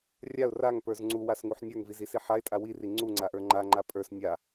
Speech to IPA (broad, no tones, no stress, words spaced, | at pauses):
rʲaʊ̯ raŋpə˞z ŋ͡ǀuwasŋuħ nʲə˞ŋvizisi ħaɪ̯tʼa wiri ŋ͡ǀuŋ͡ǀaʔə˞ ŋ͡ǃaŋ͡ǃa pʼə˞s nʲa